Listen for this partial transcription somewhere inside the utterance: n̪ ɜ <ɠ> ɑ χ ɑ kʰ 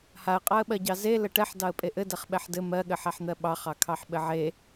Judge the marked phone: incorrect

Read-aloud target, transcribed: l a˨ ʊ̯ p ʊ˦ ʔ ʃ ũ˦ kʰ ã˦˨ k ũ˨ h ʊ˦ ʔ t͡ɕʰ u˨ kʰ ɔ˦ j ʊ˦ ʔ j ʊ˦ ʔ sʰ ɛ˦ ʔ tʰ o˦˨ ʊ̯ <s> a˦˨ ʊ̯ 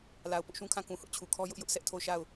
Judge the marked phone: incorrect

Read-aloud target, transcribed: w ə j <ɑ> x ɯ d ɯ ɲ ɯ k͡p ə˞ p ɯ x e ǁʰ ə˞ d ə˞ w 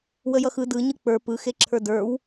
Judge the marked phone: incorrect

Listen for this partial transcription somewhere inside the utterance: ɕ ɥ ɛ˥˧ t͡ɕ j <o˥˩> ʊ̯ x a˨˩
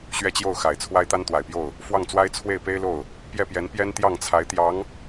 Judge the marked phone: correct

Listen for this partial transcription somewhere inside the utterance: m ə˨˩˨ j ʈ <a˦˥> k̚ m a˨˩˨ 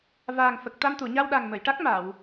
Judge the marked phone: correct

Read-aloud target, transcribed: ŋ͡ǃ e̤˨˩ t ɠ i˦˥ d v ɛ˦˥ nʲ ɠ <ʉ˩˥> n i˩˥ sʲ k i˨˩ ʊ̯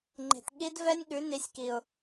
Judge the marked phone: correct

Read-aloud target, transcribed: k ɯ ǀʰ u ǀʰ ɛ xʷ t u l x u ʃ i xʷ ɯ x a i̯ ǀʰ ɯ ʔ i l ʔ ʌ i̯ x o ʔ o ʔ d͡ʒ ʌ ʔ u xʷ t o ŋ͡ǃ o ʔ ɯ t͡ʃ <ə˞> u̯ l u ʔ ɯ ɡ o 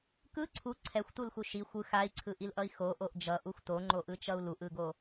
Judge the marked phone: incorrect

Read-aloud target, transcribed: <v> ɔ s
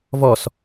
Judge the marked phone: correct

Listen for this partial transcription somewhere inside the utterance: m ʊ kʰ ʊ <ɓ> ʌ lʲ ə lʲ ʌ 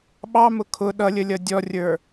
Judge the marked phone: incorrect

